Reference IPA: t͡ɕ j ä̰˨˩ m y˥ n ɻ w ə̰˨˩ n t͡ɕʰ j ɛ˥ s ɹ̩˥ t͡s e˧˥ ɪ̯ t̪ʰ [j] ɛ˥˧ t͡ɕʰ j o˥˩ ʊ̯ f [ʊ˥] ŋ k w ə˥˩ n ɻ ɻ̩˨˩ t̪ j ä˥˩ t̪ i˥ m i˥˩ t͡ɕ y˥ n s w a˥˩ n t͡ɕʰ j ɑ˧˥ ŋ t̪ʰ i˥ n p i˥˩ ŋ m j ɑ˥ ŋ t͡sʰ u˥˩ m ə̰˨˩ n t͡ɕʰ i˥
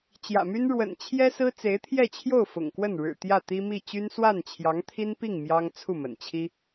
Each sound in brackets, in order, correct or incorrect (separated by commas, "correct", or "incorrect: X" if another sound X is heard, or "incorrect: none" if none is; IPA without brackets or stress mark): correct, incorrect: ʊ̰˨˩